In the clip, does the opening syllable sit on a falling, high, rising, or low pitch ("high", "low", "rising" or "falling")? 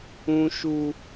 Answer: high